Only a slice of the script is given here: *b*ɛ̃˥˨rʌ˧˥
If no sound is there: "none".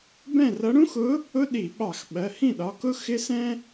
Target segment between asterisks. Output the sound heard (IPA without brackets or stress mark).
b